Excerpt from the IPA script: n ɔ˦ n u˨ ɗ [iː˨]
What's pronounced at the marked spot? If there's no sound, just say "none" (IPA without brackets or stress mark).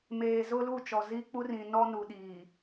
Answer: iː˨